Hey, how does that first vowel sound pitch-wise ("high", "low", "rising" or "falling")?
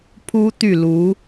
high